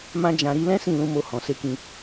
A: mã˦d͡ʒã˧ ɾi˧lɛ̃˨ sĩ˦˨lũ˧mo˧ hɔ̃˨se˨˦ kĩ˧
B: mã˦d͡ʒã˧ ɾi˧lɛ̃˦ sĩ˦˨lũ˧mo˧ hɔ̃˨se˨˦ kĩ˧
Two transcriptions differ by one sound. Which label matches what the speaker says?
B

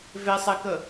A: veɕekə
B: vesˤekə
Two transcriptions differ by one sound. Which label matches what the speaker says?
B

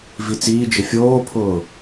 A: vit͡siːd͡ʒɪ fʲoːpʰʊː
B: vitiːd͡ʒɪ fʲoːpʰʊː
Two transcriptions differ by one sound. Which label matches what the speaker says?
A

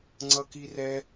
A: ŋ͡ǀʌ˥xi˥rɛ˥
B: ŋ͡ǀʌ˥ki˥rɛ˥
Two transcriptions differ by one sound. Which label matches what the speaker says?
B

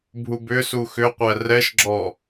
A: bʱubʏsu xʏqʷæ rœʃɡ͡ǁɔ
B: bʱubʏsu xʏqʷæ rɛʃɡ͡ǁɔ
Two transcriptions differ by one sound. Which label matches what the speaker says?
B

